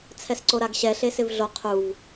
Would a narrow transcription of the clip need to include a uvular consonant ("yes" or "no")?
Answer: yes